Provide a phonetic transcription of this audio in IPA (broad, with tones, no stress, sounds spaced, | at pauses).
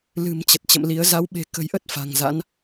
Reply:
l ɨ̤˨˩ m t͡ɕ ə˨˩ t̚ t͡ɕ ə̰˧˨ m l i˨˦ ə̯ z a˨˦ w ɓ e̤˨˩ k ə̤˨˩ j ʔ ə˦˥ t̚ f a̤˨˩ ŋ z a̰˧˥ n